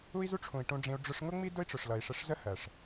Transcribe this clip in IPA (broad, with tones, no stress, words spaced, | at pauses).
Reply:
u˦i̯zu˦ʈ͡ʂʰũ˨i̯ ʈũ˧ɖ͡ʐĩ˧u̯ ɖ͡ʐʊ˧ʂŋʊ˦ŋ͡mi˦ dʊ˦i̯ʈ͡ʂʊ˨ʂlʌ˨i̯ ʂə˧ʂzə˦ hɜ˨ʂ